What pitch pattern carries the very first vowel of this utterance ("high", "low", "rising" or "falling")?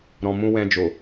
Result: low